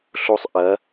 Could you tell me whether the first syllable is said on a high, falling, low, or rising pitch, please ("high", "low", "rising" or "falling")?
high